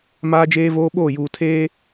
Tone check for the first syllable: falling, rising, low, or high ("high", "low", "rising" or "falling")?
high